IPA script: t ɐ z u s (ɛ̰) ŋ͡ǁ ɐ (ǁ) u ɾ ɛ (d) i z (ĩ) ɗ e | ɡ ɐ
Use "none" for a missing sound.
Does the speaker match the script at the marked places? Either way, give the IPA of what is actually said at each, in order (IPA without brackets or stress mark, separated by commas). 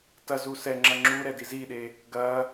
ɛ, ŋ͡ǁ, d, i